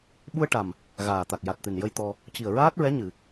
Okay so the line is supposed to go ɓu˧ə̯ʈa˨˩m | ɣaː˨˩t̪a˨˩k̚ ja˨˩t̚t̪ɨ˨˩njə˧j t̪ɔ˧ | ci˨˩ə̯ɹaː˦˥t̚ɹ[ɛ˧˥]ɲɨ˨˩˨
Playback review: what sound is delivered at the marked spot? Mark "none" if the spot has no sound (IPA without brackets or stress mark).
ɛ˧˥